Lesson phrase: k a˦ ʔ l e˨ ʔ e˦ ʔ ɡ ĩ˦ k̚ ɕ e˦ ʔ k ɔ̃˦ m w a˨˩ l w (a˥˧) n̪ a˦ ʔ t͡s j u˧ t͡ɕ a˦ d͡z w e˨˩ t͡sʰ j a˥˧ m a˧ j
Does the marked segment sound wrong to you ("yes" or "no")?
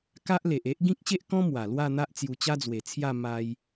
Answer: no